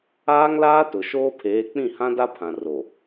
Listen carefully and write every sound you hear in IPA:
aː˦ŋlaː˦tʊ˨ ʃoː˦pʰeː˨˦ k͡pĩ˦˨hã˦da˦pʰã˨ ro˨

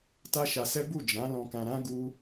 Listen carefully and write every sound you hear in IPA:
ta˦ʃa˧sɛ˦ bu˦˨d͡ʒã˨˦ lɔ̃˧kã˧ɾã˦ ɡu˦

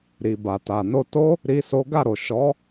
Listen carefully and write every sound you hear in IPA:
ɾi˨ba˨ta˨ no˧to˦ | ɾi˦so˦ ɡa˦˨ɾo˨ʃɔ˨˦

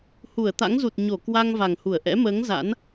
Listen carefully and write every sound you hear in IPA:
hu˧˩ə̯t̪a̰˧˥ŋzu˨˩t̚ ɲo˧˩ kwa˧ŋ va˨˩ŋhu˧˩ə̯ ʔɛ̰˧˥məː˨˦ŋ za̰˧˥n

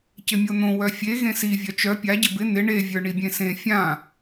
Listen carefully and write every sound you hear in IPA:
cɪmʲon̪õ wœfʲe ɣẽsi vʲœt͡ʃœ pʲa ɟɪbɪ n̪ɪ ɳe vʲə˞ɳibʲẽsẽ fʲã

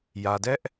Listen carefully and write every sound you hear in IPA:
jä˨dɛ˦ʔ

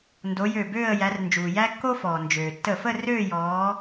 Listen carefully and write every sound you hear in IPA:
ndo˨˦jø˧˩bøː˥˧ə̯ jæ˨˦rnd͡ʒuː˩jæ˥ kːo˥fɔː˩nd͡ʒøː˩ tːə˧˩fə˥˧ røː˥˧jɔː˨˦

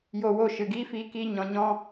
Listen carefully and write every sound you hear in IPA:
jo˧ wo˦˨ʃɨ˨ɡiː˦ fiː˧kiː˧ ɲɔ̃˨ɲɔ̃˧

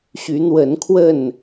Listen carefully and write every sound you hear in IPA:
ɕy˨˦n̪wə˨˦nkʰwə˥˨n

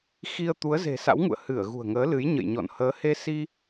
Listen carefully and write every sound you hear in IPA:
xi˧ə̯ t̪u˨˦ə̯ze̤˨˩sa̰˧˥wŋṵ˧˨ə̯ hɨ˧˩ə̯ɣṳ˨˩ə̯ŋəː˨˦lɨ˨˦j ɲə̰˧˨jɲɔ̰˧˨n həː˨˦he˧si˧

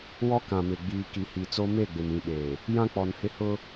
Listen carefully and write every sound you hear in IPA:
wɔ˦ kã˨mɪ˨ ɡ͡biː˨ ki˨hi˨t͡so˦ me˦˨ɡ͡bɪ˨mĩ˨ɓeː˨ | jã˦k͡pɔ˨nhɪ˦ hʊ˦

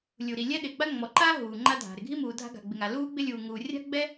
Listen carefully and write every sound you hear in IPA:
lʲu˩ɾi˩ lʲɛ˥ɗɪː˩ɡ͡ba˥ ŋ͡mɔ˩ǃaː˥ ɦuː˩ŋ͡ǃa˥dʱa̤˩ ɾɪ˩ɡʱi˥muː˩ dʱa̤˥ɡa̤˩ɡ͡bɪ˩ŋa˩ luː˥ɡ͡bɪ˥ lʲuː˩ŋuː˩rʲa̤˥ɡ͡bɛ˥

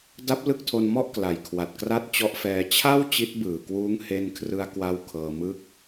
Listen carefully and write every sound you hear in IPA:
da˦˥p̚ lɯ˦˥k̚tʰo˧nmɔ˥˩ʔ kla˨˩jkʰwa˨˩t̚kra˥˩t̚ t͡ɕɔ˦˥ʔfɛː˧ t͡ɕʰa˥˩w t͡ɕi˦˥t̚ bɯː˨˩kwuː˦˥ŋ he˧nkʰrɯ˧a̯ kwa˥˩w kʰɤː˧mɯ˥˩k̚

